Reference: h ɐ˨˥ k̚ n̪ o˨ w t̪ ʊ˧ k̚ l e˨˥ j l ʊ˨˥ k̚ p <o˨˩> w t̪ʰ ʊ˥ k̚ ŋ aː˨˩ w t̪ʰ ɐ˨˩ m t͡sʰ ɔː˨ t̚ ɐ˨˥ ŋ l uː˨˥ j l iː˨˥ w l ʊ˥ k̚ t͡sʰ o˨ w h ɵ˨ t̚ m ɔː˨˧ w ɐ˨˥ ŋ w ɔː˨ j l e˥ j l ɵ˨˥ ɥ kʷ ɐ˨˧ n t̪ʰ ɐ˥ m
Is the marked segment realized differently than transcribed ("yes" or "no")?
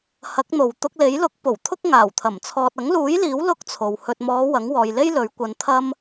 no